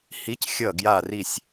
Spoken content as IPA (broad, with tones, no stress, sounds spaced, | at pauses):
h i˧˥ c xʲ ʌ˦˨ ɡ j a˦˨ r i˦˨ sʲ